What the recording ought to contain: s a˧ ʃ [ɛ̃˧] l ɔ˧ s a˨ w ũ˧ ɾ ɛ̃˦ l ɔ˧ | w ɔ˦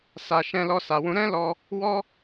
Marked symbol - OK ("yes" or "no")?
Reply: yes